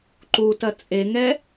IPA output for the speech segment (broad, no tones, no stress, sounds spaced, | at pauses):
ǃ u t ɐ t͡sʼ e ŋ ɛ